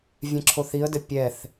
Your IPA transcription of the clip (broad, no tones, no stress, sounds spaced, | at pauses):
vʲ ɛ̃ ǁʰ o θ i ə̯ d ɘ pʲ ɛ θ